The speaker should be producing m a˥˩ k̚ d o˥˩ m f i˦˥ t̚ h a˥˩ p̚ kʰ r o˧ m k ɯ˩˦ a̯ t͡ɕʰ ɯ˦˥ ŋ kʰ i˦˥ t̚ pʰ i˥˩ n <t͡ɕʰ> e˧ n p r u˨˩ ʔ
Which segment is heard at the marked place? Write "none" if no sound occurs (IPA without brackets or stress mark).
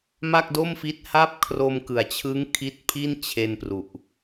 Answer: t͡ɕʰ